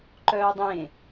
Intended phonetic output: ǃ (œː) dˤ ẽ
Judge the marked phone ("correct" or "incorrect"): correct